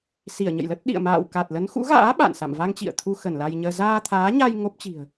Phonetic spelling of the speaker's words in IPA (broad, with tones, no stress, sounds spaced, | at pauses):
s i˧˩ ə̯ ɲ ə̰˧˨ j l ə˦˥ t̚ ɗ ḭ˧˨ ə̯ m a̰ː˧˨ w k a˨˩ t̚ l ə˨˦ n x ṵ˧˥ ɣ a̰ː˧˥ ɓ a̰˧˨ n s a̰˧˨ m v a˧ ŋ t͡ɕ ḭ˧˨ ə̯ t̪ʰ u˧ x ə˧˩ n l a˧ j ɲ əː˧ z aː˧ t̪ʰ aː˨˦ ɲ a˧ j ŋ o˦˥ p̚ t͡ɕ i̤˨˩ ə̯